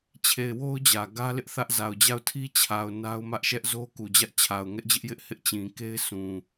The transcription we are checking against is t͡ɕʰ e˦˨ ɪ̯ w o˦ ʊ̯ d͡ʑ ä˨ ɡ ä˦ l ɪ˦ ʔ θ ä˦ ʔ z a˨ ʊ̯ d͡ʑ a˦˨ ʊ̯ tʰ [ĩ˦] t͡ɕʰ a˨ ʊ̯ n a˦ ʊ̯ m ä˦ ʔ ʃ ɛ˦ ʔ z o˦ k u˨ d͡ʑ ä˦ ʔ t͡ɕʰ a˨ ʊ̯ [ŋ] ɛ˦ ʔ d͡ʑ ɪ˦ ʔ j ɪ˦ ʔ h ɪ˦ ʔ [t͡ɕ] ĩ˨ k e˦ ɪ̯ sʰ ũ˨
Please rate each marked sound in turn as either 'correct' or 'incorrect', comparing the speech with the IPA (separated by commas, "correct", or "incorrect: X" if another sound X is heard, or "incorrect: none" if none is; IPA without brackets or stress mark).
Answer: incorrect: i˦, correct, correct